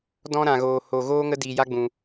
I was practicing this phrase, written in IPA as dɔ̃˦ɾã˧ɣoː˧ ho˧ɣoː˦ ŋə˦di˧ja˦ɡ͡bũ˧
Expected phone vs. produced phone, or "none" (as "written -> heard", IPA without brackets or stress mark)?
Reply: none